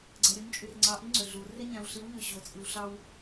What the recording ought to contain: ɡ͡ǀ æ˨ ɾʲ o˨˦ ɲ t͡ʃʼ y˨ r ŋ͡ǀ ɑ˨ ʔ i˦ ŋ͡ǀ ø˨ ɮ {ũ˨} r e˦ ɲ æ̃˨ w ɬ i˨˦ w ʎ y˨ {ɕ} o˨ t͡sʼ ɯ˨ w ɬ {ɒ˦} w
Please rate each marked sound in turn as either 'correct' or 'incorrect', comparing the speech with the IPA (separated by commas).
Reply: incorrect, correct, incorrect